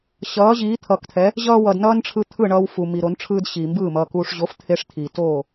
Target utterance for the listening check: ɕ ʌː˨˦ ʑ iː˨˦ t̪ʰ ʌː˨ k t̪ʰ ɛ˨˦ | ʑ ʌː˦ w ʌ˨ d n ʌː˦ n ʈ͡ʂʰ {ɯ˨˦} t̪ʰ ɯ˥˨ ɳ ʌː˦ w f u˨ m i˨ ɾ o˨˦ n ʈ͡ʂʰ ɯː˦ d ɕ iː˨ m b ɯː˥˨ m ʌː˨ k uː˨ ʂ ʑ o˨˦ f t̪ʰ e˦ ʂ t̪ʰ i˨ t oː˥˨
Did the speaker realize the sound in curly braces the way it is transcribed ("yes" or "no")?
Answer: no